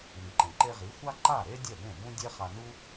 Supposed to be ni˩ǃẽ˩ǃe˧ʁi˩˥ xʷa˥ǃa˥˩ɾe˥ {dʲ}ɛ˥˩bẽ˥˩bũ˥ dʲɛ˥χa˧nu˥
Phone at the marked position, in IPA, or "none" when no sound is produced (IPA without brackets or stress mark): dʲ